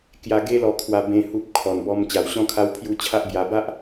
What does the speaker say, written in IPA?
k j a˧ ɡ e˦ l ɔ˧ kʰ w a˧ b ẽ˦ h u˦ p̚ kʰ ɔ˨˩ n b ɔ˧ m t͡ɕ a˨˩ w ɕ ɔ̃˧ kʰ a˧ w pʰ j u˧ t͡ɕʰ a˦ ʔ b j a˧ b a˦ ʔ

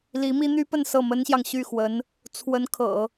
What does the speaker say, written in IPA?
l i˧˥ m i˥ n̪ y˥ p ə˥˧ n s ɤ˥˩ m ə˥ n ɕ j ɑ˨ ŋ ɕ y˥˩ x w ə˧˥ n | t͡sʰ w ə˧˥ n kʰ ɤ̰˨˩˦

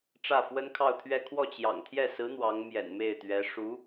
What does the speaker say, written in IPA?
ʈ͡ʂ ä˥˩ f w ə˥ n kʰ ɑ˥˧ ʊ̯ t̪ʰ ɥ ɛ˥˧ kʰ w ɔ˥˩ t͡ɕ j ɑ̰˨˩ ŋ t̪ʰ j ɛ˥˩ s ɹ̩˧˥ n̪ w ɑ˧˥ ŋ m j ɛ̰˨˩ n m e˥˩ ɪ̯ t̪ ɥ ɛ˧˥ ʂ u˧˥

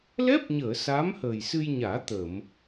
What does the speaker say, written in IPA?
l ɛ˦˥ p̚ ɲ əː˨˩˨ s a˧˥ m h əː˨˩ j s ɨ˧ j ɲ aː˨˩˦ t̪ ə˨˩˨ m

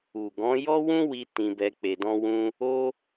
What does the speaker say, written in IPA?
u˨ ɡ ɔ̃˨˦ j ɔ˦ w ũ˦ w i˧ t ĩ˧ b ɛ˧ k͡p e˧ d ɔ̃˦ w ũ˦ | o˦

